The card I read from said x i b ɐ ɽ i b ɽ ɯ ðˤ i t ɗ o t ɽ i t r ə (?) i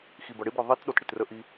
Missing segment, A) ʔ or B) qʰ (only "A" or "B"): A